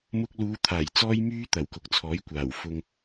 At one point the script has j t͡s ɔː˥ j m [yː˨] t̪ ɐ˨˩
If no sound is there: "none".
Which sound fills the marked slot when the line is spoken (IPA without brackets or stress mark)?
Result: yː˥